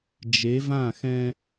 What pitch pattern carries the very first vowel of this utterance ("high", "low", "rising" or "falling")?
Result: rising